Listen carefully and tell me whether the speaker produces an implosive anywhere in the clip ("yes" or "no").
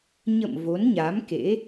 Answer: no